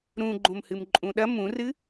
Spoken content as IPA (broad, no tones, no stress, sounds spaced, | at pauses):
ɾ ũ ɡ͡ǃ õ m h ɨ m ǃʼ ũ ɗ ɐ m ũ r ɨ